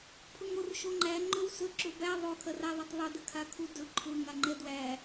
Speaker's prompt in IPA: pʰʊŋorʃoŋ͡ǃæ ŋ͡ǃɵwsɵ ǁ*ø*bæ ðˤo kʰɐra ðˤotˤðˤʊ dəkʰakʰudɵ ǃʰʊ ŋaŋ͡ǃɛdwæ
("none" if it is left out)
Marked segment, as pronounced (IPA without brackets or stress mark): ɵ